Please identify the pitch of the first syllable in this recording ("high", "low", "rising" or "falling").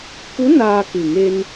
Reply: rising